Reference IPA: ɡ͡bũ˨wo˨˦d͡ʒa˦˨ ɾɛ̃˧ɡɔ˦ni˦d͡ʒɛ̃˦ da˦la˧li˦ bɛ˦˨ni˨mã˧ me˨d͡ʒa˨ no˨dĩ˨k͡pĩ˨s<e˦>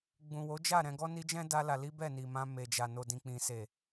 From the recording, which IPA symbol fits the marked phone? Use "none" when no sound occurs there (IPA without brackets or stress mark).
e˨